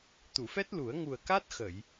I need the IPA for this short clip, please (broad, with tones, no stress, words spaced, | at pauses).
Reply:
t̪u˨˩˨fɛ˦˥t̚lu˨˩˦ə̯ ŋu˨˩ə̯ka˦˥t̚xə˨˩˨j